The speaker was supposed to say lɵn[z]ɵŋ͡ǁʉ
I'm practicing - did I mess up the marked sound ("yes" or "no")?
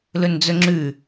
yes